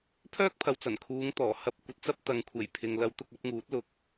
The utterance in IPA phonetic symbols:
pʰœː˥k̚pʰɐ˨wt͡sɐ˨˩nkʰuː˨˧ŋ t̪ɔː˨˩hɐ˧p̚ kʷɐ˨t̚t͡sɐ˥p̚t̪ɐ˨ŋkʷʰe˨˩j pʰɪ˨ŋ lɐ˨˧w t̪ʊ˧k̚ɐ˨˥p̚ŋuː˨˥t̚ lʊ˨k̚

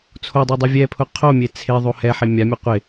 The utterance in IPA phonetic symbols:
t͡sʰodˤi dˤuvʲɛpʰʊ qʰomʲe t͡sʰeðˤo hɛ ħemʲamʲu qʷɪ

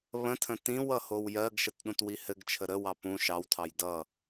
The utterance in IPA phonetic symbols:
βə̃tʰə̃ tĩwʌ howjɜɡʃət ɗũtwihɘɡt͡ʃʰə ɾəwɑ pũ ʃɑwtʰɑj dʌ

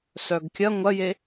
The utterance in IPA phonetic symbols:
sœɡkʲɐ ŋʷɐje

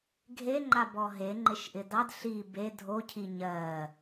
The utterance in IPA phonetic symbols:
ɡʱeŋ͡ǃabɔ ɦeŋ͡ǃɪʃʔɪ dɑd ɬi be dʱocʰi ɲɜ

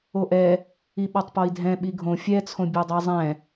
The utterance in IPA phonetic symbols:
oʔɛ | iɓɒtˤpɔi̯dʱɛ̃ ɓiɡʱõ fʲɛt͡sʰõ bʲodˤɛzˤɛ̃

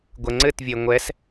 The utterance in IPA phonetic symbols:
ɡʷɘŋ͡ǀɘtvʲe ŋʷɛs

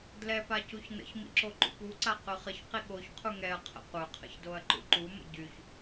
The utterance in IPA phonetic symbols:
dlɛpa cuçnə̰çmḭ ǁoǃṵpuǀa qyχəçqi ɠoç qʰuŋɛɐ̯qʰə̰ qʷœqʰə̰ç doɐ̯ǃṵǃumə̰ ɟyç

